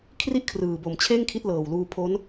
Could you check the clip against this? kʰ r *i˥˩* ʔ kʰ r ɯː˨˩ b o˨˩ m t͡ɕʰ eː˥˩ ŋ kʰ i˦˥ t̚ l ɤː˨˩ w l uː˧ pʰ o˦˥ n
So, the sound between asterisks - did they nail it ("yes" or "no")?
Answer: yes